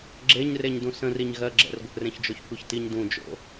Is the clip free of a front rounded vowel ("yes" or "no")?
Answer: yes